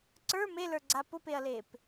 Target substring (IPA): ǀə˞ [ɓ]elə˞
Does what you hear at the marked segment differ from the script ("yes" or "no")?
yes